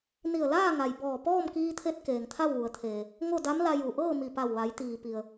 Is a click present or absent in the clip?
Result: absent